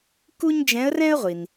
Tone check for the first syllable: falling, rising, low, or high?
high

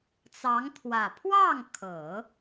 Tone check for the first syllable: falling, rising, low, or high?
rising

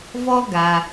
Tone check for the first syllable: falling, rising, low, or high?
high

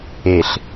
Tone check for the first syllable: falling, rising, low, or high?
low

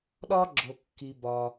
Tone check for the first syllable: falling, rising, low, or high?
high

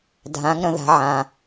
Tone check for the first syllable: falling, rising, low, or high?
rising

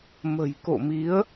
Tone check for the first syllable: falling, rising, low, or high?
low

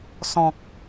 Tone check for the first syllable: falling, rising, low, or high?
low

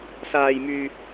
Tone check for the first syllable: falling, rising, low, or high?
high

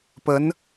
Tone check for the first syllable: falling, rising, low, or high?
rising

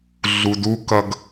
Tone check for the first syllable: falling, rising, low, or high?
low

